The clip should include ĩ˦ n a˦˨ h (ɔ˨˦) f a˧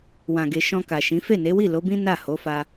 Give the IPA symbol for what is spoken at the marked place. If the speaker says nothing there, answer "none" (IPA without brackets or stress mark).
o˨˦